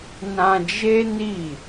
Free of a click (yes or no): yes